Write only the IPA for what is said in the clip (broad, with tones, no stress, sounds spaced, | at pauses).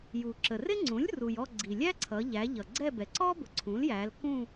j u˩ ǁ ə˩ r ɪ˥ ŋ͡ǀ ũ˩˥ lʲ r u˩ j ɔ˦˨ ɡ͡ǀ i˩ lʲ æ˥ ǀʰ ʌ˩˧ ʎ æ˩˧ ʎ ʌ˩ ɡ͡ǀ ɛ˦˨ b ɛ˩ ǀ ɔ˥ b ʊ˩˧ ǀʰ ũ˩˥ l j æ˩˧ l k ũ˦˨